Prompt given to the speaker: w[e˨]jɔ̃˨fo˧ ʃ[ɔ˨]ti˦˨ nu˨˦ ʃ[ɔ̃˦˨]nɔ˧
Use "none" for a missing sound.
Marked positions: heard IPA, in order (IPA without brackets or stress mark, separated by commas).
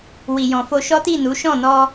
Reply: i˨, ɔ˦, ɔ̃˦˨